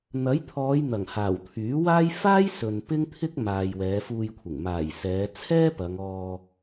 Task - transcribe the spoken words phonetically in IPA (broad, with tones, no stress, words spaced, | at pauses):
n̪ɐ˨˥jt̪ʰɔː˨˧j n̪ɐ˨˩ŋhaː˨˩w t̪ʰyː˨˥waː˥j faː˥jsɵ˨n pɪ˥ŋt̪ʰɪ˥k̚ maː˨jwɛː˨˧fuː˧jkʷʰɪ˨˩ŋ maː˨˩jsɛː˨˧ t͡sʰɛː˥ pɐ˨˧ŋɔː˧